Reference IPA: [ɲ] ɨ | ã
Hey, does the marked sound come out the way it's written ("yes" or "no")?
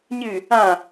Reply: yes